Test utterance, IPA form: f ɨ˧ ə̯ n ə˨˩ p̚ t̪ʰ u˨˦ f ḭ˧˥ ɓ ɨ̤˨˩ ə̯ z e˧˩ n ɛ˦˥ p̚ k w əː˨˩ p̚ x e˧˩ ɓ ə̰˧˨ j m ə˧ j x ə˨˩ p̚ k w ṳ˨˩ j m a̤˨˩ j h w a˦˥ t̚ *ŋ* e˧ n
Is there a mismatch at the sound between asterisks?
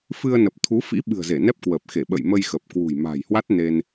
yes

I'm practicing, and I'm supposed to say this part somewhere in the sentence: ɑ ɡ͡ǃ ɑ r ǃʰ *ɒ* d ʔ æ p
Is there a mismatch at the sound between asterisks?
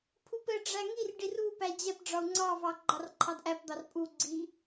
yes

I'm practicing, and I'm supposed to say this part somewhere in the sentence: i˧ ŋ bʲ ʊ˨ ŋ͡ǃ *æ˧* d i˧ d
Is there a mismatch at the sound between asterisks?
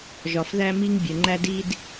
no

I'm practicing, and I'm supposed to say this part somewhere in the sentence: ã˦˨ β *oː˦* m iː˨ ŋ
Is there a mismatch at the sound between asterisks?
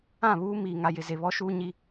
yes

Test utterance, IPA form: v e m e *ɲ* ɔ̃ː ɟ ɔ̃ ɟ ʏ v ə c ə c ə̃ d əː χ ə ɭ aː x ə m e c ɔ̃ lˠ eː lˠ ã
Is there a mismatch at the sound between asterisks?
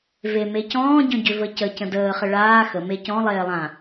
yes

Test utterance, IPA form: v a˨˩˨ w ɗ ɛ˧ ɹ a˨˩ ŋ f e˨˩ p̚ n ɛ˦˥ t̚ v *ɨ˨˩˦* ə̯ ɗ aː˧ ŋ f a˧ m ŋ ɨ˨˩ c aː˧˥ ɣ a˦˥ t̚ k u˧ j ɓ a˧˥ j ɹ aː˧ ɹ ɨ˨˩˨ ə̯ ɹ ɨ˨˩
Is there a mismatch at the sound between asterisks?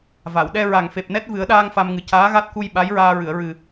no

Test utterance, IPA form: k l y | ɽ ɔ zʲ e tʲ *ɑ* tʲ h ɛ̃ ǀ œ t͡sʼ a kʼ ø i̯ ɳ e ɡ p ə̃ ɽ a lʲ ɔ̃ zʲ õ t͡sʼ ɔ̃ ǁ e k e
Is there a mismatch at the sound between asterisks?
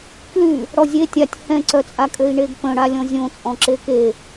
yes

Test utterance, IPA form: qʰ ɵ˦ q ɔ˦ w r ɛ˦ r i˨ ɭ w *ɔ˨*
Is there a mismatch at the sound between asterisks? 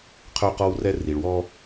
yes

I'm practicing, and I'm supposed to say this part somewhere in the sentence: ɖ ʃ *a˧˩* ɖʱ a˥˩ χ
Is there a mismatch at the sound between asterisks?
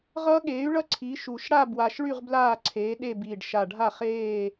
no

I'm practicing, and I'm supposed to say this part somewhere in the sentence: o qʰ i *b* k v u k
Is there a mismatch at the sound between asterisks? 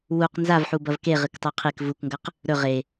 yes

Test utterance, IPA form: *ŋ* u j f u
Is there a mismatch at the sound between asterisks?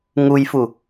no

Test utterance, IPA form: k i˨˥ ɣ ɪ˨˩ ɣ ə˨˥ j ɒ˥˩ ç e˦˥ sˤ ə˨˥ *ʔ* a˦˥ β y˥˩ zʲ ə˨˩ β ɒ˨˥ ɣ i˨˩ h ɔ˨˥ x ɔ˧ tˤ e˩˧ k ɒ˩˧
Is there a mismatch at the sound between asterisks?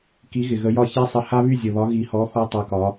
yes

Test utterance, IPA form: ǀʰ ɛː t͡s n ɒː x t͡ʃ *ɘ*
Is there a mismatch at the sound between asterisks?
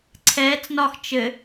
no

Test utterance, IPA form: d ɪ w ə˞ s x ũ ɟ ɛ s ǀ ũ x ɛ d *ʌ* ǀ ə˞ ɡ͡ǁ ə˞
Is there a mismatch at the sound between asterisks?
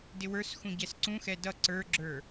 no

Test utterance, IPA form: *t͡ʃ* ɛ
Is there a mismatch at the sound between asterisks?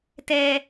yes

